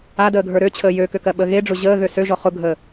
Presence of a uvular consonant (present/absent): present